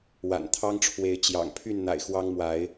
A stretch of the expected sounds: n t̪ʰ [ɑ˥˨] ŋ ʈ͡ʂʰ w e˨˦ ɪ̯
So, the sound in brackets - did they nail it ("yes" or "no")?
no